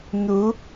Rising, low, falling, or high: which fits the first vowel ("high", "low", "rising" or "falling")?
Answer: rising